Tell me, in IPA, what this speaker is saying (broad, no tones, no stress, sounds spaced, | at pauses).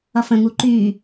ʌ f ə̃ ŋ u ǃ y